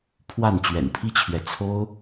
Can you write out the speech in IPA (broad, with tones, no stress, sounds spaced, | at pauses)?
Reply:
pʰ w a˥˩ n t͡ɕ ɥ ɛ̰˨˩ n pʰ i˥ t͡ɕʰ ɥ ɛ˨ t͡sʰ o˥ ʊ̯